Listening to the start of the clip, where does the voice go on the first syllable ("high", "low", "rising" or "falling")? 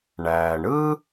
low